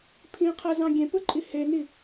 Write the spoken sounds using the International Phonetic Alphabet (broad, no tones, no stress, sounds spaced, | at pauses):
pʰ ĩ qʰ æ z ɑ̃ ɡʲ ẽ p ɯ ǃʼ i h e n i